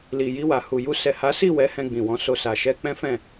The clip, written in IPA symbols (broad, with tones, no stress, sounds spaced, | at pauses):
l i˨ j i˧ w a˨ h u˨ j u˧ s ɛ˨ h a˨˦ s i˦˨ w ɛ˨˦ h ɛ̃˧ ɡ͡b ĩ˨ w ɔ̃˨˦ s o˧ s a˨ ʃ ɛ˧ k͡p ɛ̃˦ f ɛ̃˦˨